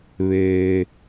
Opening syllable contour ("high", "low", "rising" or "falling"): low